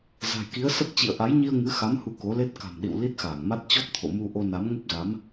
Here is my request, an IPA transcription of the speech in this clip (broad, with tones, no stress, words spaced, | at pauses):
za̤˨˩jki˨˦ə̯sə˦˥p̚ t͡ɕḭ˧˨ə̯ʔa˨˦jɲi˧ə̯ ŋɨ˨˦xa˨˦m hu˧ko˨˦le˦˥t̚ ka̤˨˩mɗḭ˧˨w li˦˥t̚xaː˧˩ŋma˦˥t̚ t͡ɕɔ˦˥p̚t̪ʰo̰˧˨ mu˧ ʔo˧na˨˦m ŋo˦˥p̚za˨˦m